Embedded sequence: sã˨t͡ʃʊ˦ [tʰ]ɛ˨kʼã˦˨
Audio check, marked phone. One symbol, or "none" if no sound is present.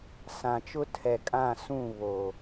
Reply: tʰ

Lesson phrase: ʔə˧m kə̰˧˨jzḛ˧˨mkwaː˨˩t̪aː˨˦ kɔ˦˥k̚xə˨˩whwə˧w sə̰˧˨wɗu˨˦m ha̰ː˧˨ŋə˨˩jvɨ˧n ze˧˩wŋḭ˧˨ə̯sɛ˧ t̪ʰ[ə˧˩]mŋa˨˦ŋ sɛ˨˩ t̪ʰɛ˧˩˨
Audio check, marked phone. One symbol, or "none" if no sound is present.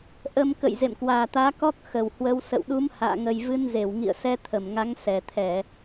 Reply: ə˧˩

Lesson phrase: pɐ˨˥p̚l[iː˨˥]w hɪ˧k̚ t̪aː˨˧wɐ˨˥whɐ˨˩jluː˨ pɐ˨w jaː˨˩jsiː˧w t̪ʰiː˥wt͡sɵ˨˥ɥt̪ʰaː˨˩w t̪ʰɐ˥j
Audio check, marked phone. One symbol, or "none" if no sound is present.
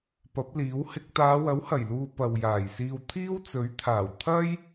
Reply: iː˨˥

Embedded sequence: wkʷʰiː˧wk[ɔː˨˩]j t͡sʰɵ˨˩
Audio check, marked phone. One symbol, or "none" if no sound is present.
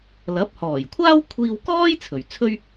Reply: ɔː˥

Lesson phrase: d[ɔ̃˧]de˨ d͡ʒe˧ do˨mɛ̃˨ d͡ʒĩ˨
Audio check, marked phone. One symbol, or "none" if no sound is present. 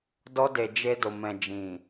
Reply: ɔ˧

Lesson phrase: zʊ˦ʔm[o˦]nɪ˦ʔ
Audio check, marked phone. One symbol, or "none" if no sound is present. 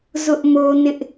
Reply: o˦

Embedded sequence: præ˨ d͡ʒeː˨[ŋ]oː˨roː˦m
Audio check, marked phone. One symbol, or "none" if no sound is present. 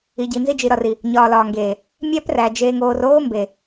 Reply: ŋ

